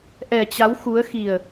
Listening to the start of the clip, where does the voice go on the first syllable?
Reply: low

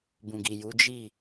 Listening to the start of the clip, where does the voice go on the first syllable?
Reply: low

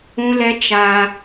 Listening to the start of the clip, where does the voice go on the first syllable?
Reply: high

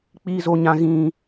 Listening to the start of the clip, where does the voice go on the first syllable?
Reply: high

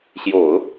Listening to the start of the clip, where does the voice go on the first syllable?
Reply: low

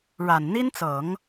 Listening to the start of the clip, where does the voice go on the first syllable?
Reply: low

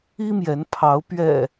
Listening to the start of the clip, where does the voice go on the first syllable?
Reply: high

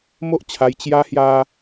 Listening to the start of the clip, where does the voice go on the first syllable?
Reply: high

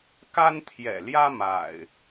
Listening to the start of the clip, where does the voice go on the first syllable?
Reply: high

